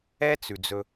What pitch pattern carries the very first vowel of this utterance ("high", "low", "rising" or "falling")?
high